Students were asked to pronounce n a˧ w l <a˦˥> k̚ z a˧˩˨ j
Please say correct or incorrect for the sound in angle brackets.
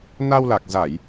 incorrect